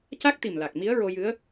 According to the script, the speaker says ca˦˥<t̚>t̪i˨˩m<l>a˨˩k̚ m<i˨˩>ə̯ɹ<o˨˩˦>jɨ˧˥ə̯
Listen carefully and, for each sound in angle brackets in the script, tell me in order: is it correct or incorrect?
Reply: incorrect: k̚, correct, incorrect: i˧˥, incorrect: o˧

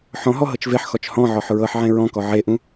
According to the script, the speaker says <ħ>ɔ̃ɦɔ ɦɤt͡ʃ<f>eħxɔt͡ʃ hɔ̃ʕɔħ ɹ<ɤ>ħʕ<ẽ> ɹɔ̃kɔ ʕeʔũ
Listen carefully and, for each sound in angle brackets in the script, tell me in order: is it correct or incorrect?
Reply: correct, incorrect: v, correct, correct

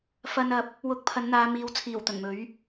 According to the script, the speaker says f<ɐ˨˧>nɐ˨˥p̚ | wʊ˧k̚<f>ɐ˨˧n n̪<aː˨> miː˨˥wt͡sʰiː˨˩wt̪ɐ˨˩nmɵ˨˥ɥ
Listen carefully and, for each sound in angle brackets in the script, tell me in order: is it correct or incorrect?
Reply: incorrect: ɐ˧, incorrect: pʰ, incorrect: aː˨˧

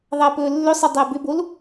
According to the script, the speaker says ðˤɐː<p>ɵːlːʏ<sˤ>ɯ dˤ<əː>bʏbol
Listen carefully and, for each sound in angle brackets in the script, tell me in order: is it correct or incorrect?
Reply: correct, correct, correct

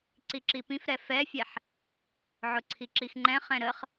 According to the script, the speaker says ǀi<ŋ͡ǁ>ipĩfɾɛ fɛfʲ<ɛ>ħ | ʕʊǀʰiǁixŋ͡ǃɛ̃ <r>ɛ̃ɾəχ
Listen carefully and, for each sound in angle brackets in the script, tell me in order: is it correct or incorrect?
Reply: incorrect: ǁ, correct, incorrect: χ

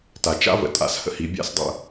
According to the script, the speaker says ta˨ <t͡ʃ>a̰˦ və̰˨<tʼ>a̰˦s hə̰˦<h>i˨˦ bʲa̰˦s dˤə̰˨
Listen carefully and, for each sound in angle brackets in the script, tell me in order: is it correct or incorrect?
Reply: correct, correct, correct

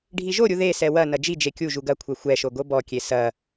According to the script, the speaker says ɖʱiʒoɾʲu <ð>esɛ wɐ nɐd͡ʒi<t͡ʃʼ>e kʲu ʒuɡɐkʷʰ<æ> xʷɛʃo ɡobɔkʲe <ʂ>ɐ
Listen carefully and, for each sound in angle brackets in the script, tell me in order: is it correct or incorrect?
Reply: correct, incorrect: d͡ʒ, incorrect: ɛ, incorrect: s

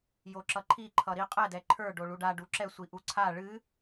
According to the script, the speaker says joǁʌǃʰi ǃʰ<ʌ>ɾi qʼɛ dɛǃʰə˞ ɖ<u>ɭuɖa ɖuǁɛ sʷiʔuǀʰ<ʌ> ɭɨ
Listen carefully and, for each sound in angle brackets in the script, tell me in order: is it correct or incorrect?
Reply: correct, incorrect: o, incorrect: a

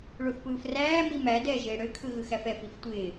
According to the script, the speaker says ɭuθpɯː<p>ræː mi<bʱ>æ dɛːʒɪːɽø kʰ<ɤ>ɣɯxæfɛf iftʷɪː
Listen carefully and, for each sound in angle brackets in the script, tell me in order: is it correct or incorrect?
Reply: incorrect: f, incorrect: m, incorrect: ɯ

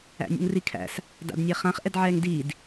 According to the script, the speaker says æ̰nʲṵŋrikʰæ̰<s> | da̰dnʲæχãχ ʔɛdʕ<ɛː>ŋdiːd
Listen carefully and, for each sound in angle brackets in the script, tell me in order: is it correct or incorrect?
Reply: correct, correct

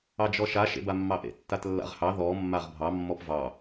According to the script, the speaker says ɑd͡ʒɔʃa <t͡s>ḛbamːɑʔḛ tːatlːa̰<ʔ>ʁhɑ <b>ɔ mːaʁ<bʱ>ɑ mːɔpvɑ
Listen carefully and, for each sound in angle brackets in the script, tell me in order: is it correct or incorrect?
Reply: incorrect: ʃ, incorrect: none, incorrect: ð, correct

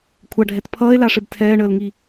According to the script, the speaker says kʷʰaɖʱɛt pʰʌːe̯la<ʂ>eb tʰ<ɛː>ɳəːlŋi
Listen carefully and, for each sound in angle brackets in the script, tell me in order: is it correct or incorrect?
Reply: correct, correct

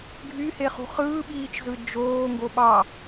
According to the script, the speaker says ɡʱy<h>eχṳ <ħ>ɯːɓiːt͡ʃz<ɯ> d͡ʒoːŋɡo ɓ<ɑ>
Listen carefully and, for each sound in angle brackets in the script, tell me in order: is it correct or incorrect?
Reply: correct, incorrect: χ, correct, correct

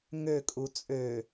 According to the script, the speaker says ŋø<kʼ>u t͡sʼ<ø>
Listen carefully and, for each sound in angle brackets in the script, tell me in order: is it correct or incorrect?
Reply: correct, correct

